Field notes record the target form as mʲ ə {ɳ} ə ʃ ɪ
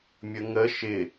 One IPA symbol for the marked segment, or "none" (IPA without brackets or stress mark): ŋ